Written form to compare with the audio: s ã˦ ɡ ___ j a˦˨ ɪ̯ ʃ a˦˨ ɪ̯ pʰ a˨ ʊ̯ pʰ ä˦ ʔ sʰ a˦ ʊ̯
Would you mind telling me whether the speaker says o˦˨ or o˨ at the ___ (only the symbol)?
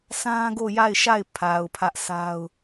o˦˨